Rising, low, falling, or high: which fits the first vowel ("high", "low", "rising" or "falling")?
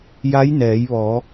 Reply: rising